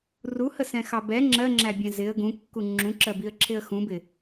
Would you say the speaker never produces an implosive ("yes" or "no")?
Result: yes